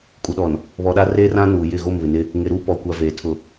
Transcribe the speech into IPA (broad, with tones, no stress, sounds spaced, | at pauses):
kʼ u˨ ɗ ɔ˨ n | β ɔ˨ ɗ a˦ r eː˦ r ã˦ n uː˨ j ɪ˦˨ ɣ o˦˨ m β ɪ˨ n ɪ˦ | ŋ ɪ˨ ɾ uː˦ p ɔ˨ kʷ a˨ v eː˨ tʰ ʊ˨